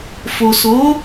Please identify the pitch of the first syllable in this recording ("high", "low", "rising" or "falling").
low